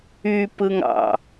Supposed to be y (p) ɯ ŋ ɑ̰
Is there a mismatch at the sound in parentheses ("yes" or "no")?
no